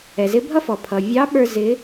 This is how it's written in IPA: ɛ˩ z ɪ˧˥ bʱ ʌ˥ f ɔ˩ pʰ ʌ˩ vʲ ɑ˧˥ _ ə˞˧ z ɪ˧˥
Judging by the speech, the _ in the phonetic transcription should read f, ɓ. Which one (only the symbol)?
ɓ